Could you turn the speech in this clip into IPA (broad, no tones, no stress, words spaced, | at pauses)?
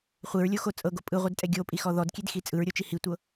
χʷeɹlʲoxo t͡sʼɤɡo pʼɯʁʷɯdtʼɛ ɡʲopʼixɔ ðɔdkʲedxi t͡sʼɯɹɾʲot͡ʃi hitʷɤ